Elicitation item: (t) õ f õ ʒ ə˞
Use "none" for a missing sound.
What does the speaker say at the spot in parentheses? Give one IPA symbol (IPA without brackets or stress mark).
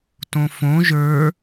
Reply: t